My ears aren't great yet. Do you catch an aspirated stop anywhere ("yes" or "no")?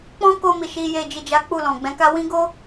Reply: no